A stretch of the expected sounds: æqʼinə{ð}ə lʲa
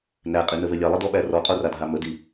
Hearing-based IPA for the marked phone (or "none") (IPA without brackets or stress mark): ð